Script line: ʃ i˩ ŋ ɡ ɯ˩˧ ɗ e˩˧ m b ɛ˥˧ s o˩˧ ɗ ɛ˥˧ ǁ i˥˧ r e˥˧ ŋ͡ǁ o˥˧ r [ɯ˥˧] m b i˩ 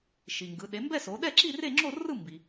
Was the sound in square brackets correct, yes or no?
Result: yes